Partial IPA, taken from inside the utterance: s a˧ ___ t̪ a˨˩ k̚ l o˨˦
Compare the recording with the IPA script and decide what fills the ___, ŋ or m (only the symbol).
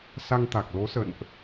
ŋ